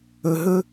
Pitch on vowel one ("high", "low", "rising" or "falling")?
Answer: low